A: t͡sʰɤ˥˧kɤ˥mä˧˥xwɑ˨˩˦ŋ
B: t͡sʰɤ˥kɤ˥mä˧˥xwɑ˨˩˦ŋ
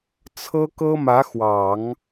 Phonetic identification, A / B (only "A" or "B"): B